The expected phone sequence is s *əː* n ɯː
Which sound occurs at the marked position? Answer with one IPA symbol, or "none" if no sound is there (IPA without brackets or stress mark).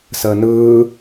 əː